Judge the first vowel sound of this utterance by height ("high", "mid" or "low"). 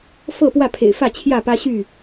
mid